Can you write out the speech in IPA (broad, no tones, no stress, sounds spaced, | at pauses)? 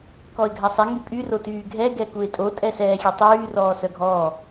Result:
k ɔ ɪ̯ ɡʱ a sˤ ɛ ŋ y pʼ y r o t yː ɡʱ ɛ ɡ ɛ k u ɪ̯ tʼ o tʼ ɛ s ɛː xʲ e tˤ yː r ɔː s œ ɡʱ ɔː